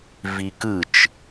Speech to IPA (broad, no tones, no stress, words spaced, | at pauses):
vikɯt͡ʃ